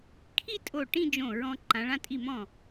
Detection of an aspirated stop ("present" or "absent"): present